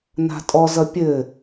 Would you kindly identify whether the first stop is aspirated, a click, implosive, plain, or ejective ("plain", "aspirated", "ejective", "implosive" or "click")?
ejective